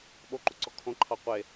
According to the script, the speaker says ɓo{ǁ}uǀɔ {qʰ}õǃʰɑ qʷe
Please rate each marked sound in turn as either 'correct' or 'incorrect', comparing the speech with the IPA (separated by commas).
incorrect, incorrect